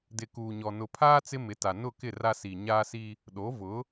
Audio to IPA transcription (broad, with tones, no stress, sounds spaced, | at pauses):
d ɪ˨ k uː˨ ɲ ɔ˨ n ʊ˨ pʰ aː˦ t͡s ɪ˦ m ɪ˨˦ t a˨ n ʊ˦˨ k ɪ˦˨ r a˦ s i˨ ɲ aː˦ s i˦ | ɗ o˨˦ v ʊ˨˦